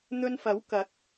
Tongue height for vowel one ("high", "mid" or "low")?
mid